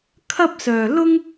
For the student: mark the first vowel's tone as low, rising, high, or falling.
high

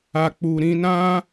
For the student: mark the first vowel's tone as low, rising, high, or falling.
low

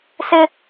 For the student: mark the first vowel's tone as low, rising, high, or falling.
high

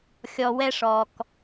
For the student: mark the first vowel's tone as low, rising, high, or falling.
low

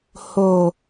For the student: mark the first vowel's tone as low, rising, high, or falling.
low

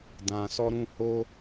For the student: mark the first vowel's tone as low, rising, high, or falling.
low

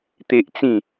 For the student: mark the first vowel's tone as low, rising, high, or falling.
high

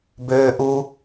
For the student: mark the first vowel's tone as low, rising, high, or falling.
high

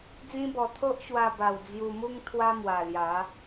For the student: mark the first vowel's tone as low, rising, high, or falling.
high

